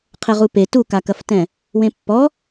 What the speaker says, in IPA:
qʰɘʁupe tukakɐftɛ̃ | wẽpːɔ

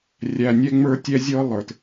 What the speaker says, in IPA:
rʲæ˨nʲɛ˦ ŋ͡mə˞˦tʲɛ˦zʲɤ˦ lˠə˞˨t

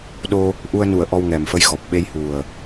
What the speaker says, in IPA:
ɗo˧ | ʔu˧ə̯nu˨˩˨ə̯ ʔɔ˧wŋɛ˨˩mfə˧jxɔ˨˩p̚ ɓe˧jhu˨˩ə̯

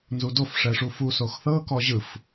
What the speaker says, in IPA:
nzudof ʂɛʂufu soxθɤ kɔʑɯf

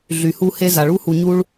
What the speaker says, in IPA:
ɮy˩hu˧ he˧ za˩ɭu˥ hu˩ɲu˧ɭ

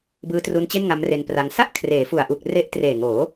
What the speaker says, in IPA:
bɯː˦˥tru˦˥nt͡ɕe˥˩n ŋa˦˥mre˧npra˧ŋ sa˥˩ʔ kʰreː˩˦fu˨˩a̯ʔu˨˩k̚ re˦˥ʔtreː˨˩ŋoː˩˦

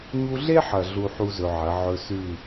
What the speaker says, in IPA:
ɲu˧ɮe˦ħɐ˨ ɮu˦ħu˦zɵ˧ʕɐ˨˦ ʕɵ˧sʉ˦˨

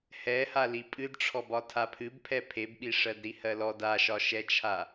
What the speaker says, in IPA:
hɛha lipʼɨdʈ͡ʂʰɔbɒ tʰapʰɨbpʰɛ pʰebɓi ʂɜdɾihɜlɔd aʃɒʃɛt͡ʃʰa

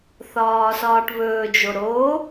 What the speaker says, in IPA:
θɒːsɒːʈβɵːd͡ʒo ɾo

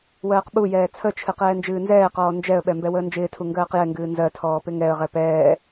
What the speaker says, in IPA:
wɜːqɓujɛː t͡sʰət͡ʃʰɨ qɛːnd͡ʒɨːnzɛːqɔː nd͡ʒɛə̯ɓɛ mbɛwəːnd͡ʒɪːtʰu ŋɡɜːqjɛŋɡɨː nzɜtʰɔː pɪŋɛə̯ʁɛ pɛː

